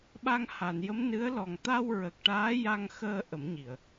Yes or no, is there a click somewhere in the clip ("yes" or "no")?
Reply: no